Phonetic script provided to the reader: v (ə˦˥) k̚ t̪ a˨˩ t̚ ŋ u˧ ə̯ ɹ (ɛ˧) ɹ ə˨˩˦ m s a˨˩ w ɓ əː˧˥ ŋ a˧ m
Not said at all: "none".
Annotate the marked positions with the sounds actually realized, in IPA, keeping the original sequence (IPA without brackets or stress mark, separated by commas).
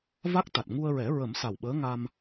a˦˥, ɛ˨˩˦